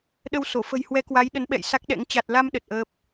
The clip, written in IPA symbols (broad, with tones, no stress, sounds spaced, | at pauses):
ɗ ə˧ w s o˧˩ f ə̤˨˩ j h w ɛ˨˦ k w a˨˦ j ɗ ə˨˦ n ɓ ɛ̰˧˨ j s a˦˥ k̚ ɗ ɛ̰˧˥ ŋ t͡ɕ a˨˩ t̚ l a˧ m ɗ ə˨˩ t̚ ʔ əː˦˥ p̚